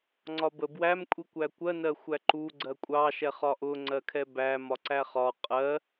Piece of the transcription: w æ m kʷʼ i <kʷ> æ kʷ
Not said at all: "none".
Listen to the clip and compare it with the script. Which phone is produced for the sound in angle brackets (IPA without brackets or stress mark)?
kʷ